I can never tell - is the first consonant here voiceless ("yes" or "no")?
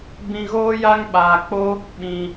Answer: no